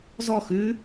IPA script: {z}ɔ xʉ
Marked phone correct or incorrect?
correct